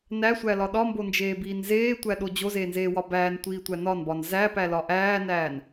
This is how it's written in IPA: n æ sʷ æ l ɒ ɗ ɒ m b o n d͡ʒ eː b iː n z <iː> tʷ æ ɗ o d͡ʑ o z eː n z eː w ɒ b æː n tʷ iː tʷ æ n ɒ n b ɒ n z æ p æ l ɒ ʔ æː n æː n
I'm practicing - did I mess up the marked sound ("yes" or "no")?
yes